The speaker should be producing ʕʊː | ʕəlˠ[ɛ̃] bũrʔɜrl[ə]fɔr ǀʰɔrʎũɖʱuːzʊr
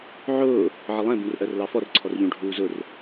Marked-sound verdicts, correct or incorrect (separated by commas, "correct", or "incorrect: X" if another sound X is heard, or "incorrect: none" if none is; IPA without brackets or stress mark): correct, incorrect: ɑ